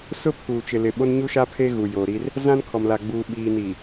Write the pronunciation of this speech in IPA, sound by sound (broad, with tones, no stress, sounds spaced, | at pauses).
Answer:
s ʊ˦ pʰ uː˨ t͡ʃ ɪ˨ l ɪ˨ ɓ o˦ n ɲ u˦ ʃ a˦ pʰ e˦ ɣ u˨ j oː˨ ɾ i˦ r | z ã˦ n kʰ ɔ˨ m l a˨ ɡ͡b uː˨ ɓ iː˨ n i˨